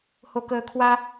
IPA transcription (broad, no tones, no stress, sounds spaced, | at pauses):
h o k əː kʰ w a